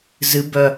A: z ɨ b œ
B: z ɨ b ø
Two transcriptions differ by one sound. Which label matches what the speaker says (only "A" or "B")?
A